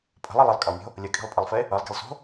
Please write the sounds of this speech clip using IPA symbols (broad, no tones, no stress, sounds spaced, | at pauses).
pʼ ə̤ lˠ i lˠ ə lˠ kʼ ə lˠ mʲ o̤ | lʲ ʌ kʼ i̤ lˠ pʼ ə lˠ f e | ʌ lˠ ɡ e̤ lˠ s o̤